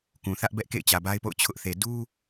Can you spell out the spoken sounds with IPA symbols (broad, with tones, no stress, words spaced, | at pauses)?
kũ˨θä˦ʔbɛ˦ʔ kḛ˦˨ɪ̯t͡ɕä˨ba˦ɪ̯po̰˦˨ʊ̯ t͡ɕʰʊ˦ʔθe˨ du˦